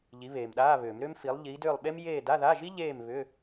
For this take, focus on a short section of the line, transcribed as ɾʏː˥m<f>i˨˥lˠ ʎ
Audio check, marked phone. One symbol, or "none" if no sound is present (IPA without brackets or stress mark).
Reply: f